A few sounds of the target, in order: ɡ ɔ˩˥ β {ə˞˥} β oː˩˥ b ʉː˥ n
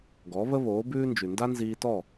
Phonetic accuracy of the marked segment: incorrect: ə˥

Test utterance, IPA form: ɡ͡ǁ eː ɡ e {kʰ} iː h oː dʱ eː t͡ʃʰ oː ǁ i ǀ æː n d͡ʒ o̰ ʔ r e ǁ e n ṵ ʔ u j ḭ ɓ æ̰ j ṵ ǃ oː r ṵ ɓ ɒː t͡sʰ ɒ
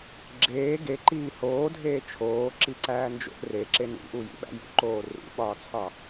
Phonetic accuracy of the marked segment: incorrect: ǃ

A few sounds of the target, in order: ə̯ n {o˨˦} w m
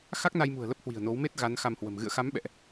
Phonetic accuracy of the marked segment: correct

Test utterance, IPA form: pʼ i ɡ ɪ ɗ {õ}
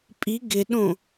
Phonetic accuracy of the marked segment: correct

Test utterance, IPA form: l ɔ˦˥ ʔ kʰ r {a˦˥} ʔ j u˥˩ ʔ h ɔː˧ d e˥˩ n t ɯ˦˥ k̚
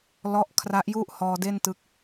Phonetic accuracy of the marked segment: correct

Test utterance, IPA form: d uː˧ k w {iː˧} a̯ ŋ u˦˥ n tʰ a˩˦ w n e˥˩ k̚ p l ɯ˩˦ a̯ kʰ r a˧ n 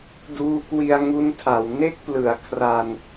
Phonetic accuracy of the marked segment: incorrect: i˧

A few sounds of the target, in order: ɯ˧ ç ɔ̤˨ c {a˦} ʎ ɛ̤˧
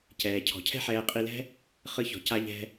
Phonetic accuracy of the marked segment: incorrect: a˧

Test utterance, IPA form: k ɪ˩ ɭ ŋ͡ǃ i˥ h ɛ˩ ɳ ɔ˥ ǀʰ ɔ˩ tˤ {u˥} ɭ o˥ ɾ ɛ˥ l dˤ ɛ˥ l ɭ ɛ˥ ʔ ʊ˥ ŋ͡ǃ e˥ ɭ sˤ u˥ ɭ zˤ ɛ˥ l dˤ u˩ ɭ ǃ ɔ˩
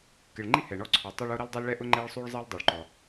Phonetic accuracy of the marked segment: incorrect: o˥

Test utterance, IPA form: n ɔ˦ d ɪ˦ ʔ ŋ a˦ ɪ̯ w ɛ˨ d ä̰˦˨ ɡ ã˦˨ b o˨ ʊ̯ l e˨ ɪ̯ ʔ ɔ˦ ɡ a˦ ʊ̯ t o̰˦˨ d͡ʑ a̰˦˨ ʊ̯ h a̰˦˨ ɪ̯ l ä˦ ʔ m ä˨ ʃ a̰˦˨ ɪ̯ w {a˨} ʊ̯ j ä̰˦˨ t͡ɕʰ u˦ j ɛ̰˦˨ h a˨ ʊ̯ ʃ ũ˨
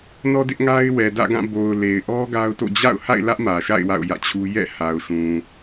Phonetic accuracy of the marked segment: incorrect: a̰˦˨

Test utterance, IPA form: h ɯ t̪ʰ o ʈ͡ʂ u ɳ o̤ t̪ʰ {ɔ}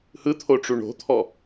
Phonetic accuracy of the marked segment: correct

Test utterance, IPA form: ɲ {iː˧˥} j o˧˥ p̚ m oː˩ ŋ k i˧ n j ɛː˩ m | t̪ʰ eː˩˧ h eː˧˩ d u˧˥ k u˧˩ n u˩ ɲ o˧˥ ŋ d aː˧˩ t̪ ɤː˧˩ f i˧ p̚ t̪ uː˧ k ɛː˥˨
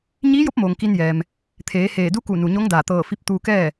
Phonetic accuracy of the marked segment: correct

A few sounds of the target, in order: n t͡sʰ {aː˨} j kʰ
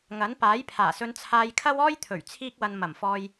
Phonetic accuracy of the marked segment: incorrect: aː˧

